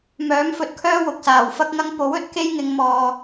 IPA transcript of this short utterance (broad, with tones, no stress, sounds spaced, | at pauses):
m œː˨˥ m f ɵ˨ t̚ kʰ œː˥ w ʊ˨ k̚ s aː˨˩ w f ɐ˥ k̚ ŋ ɐ˥ ŋ p o˨˥ w ɵ˨˥ t̚ k e˥ j ŋ ɪ˨˧ ŋ m ɔː˨